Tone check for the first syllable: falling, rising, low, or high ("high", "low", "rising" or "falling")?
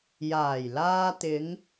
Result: low